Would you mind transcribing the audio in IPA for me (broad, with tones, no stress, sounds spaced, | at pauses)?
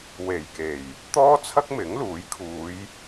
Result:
w e˨˩ j k e˨˩ j | t̪ ɔː˥ t͡sʰ ɐ˥ k̚ m ɪ˨˥ ŋ l uː˨˥ j kʰ uː˨˧ j